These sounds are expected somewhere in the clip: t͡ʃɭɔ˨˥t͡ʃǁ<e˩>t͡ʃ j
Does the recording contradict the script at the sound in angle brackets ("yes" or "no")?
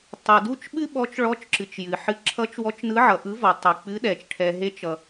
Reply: yes